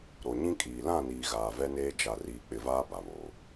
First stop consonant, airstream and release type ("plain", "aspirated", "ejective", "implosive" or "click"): ejective